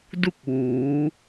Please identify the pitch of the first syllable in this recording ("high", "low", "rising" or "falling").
falling